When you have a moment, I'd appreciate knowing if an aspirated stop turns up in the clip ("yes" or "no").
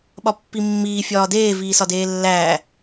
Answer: no